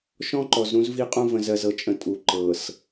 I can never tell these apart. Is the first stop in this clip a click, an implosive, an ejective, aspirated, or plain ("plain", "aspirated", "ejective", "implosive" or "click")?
click